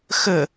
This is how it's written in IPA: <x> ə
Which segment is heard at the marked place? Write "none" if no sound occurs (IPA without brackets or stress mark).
x